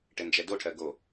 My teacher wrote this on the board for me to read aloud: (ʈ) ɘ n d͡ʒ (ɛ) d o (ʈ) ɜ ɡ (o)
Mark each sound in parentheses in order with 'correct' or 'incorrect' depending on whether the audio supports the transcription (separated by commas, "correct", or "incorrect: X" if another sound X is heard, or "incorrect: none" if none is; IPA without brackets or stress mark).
correct, correct, incorrect: ʈʰ, correct